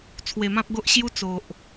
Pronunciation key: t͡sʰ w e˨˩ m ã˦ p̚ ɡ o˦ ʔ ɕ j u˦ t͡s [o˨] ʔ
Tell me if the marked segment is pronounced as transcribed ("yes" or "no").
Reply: yes